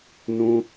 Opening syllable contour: high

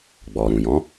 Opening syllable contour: low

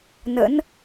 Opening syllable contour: rising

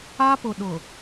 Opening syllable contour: high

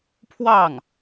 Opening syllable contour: falling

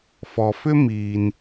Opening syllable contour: low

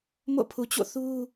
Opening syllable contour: falling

